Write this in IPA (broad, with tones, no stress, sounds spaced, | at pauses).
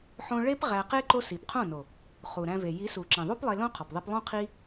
ħ õ˧ ɭ e˦ p ʁ æ˧ q e˦ ǃ o˦ s i˨ p qʰ õ˦˨ n o˨ | χ u˨ ɾ æ̃˧ v e˨ j i˨˦ s u˨ ǁ ĩ˨ ðˤ u˦ p lˠ e˧ l õ˦ qʰ ɒ˨ p ðˤ e˧ p lˠ õ˦ qʰ i˦